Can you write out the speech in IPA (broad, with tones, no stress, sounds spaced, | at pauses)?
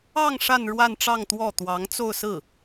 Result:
ɑ˥˧ ŋ ʂ a˥˧ n ɻ w a˥˧ n ʈ͡ʂ ɑ˥˧ ŋ t̪ w ɔ˥˩ t̪ w ɑ˧˥ ŋ t͡s o˥˧ ʊ̯ s ɹ̩˥˩